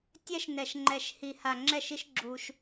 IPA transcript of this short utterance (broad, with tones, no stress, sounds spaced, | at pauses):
tʲ ɛ˦ ʃ n ɛ˨ ʃ ŋ͡ǃ ɛ˨ ʃ h i˨ h a˨ ŋ͡ǁ ɛ˦˨ ʃ i˦ ʃ ɡ͡ǁ u˦ ʃ